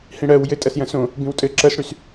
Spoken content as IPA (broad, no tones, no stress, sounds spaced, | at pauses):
h ĩ ɽ ɜ w j ɘ tʼ ɐ s j ɐ̃ s õ | b ĩ w tʼ ɘ ǁ ɜ s ɽ y s